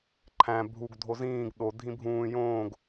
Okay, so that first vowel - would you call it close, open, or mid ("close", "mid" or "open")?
open